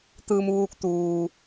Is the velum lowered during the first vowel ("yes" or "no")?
no